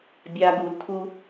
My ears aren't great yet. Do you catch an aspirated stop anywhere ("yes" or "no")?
yes